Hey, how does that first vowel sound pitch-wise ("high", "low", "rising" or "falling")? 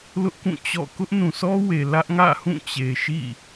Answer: high